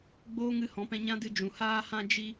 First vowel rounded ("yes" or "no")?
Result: yes